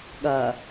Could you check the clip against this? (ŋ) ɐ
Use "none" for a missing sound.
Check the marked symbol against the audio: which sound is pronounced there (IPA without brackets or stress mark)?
ɠ